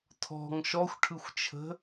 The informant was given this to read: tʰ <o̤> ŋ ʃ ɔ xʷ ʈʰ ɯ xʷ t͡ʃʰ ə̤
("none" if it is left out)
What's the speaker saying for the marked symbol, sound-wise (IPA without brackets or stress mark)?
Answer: ɔ̤